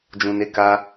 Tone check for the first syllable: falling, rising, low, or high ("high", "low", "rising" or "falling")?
low